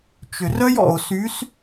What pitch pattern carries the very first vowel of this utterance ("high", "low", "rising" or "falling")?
low